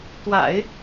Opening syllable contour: low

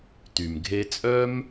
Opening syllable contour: low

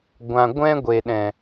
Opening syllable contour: low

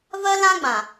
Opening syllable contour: high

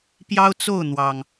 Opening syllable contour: high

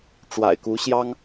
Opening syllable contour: low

